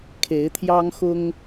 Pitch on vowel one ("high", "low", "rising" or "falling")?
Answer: rising